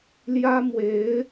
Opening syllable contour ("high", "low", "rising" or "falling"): high